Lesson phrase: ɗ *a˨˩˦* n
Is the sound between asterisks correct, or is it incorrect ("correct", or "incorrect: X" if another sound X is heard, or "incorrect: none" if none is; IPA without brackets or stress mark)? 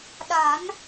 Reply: correct